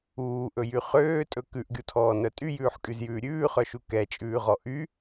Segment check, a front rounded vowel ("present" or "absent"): present